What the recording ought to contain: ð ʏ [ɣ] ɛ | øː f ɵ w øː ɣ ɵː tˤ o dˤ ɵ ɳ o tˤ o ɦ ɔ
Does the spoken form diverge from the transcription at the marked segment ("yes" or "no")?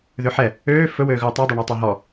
yes